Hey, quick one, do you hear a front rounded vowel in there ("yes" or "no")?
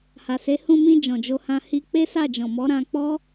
no